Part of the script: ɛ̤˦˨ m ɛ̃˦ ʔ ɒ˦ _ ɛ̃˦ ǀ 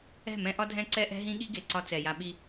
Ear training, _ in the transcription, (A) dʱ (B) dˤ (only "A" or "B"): A